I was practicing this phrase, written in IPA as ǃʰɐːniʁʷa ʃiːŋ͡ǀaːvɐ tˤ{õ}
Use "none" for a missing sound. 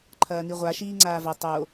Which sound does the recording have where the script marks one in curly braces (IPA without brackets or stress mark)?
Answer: o